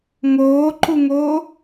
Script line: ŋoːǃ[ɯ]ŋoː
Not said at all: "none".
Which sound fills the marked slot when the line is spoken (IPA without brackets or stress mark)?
u